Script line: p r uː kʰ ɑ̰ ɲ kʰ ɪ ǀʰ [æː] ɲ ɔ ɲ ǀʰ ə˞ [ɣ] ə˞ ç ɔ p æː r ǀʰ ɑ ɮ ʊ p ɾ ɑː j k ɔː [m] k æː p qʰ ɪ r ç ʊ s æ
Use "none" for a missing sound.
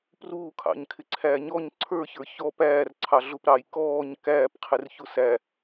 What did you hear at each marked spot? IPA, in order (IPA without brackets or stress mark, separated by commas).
æː, ç, ɲ